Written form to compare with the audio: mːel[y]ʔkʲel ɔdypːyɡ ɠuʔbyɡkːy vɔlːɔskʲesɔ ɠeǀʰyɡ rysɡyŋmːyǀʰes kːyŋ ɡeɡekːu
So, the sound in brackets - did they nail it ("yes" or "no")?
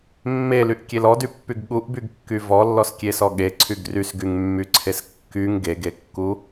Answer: yes